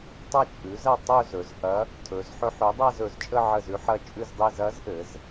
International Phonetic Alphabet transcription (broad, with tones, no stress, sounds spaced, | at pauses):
tˤ ɐ˥˧ t͡ʃʼ ʉ˩˥ z ɐ˥˧ tˤ ɵ˥˧ z ɵ˩˧ z ʔ ɐ˧˥ | tʰ ɵ˩˧ z ħ ɵ˧˥ ħ ʉ˩˥ dˤ a˥˧ z ɵ˩˧ z t͡ʃʼ ə˥˧ ʕ ə˥˩ z ʉ˧˥ ħ ɐ˥˧ t͡ʃʼ ʉ˥˧ z dˤ i˥˧ z ɐ˧˥ z ʔ ɘ˩˧ z